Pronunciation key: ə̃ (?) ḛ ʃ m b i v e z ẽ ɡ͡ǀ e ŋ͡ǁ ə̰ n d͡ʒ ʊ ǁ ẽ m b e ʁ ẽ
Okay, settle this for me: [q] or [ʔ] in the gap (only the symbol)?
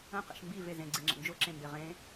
q